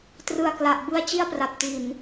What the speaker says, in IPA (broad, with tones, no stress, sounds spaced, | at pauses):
t r ɯ˨˩ a̯ k l a˨˩ ʔ b ɯ˦˥ a̯ t͡ɕ i˥˩ a̯ p r a˨˩ p̚ t i˨˩ n